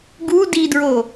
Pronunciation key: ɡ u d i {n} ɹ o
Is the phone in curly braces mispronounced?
yes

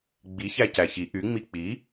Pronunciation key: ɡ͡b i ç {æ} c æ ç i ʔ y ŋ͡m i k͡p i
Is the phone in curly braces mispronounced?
no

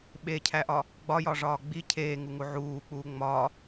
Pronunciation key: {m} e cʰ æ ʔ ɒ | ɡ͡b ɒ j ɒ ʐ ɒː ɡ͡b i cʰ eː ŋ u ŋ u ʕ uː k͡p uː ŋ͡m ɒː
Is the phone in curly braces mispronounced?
yes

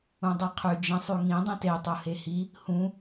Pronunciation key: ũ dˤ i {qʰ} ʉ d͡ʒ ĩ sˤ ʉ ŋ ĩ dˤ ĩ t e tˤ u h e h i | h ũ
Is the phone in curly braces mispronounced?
no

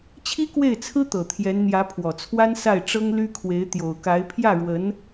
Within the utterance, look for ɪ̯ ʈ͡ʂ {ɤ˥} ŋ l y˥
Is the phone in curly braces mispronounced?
no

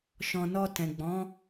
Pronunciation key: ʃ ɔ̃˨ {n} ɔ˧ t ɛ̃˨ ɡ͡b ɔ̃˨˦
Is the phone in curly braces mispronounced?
no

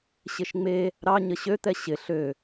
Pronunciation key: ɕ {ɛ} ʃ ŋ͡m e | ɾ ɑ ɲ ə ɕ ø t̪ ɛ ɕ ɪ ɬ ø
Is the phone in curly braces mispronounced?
yes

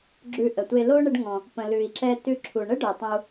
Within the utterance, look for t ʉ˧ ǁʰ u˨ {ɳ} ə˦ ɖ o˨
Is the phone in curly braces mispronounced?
no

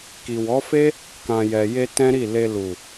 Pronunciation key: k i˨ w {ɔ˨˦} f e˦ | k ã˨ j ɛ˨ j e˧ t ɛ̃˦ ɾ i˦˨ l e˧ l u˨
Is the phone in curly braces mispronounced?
no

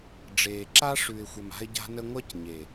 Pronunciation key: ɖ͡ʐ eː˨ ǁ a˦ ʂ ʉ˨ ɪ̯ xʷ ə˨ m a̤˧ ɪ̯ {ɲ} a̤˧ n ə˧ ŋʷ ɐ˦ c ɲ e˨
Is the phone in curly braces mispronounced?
yes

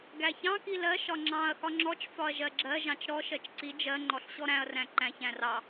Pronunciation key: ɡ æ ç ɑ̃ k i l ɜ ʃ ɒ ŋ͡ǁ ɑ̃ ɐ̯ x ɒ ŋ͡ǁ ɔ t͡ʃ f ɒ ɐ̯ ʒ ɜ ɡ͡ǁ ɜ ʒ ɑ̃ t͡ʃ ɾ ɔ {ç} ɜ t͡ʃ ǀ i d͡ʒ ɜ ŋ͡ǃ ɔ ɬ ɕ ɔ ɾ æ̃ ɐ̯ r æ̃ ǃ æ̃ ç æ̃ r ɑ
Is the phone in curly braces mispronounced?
yes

